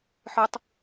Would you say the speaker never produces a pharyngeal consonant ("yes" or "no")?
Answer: no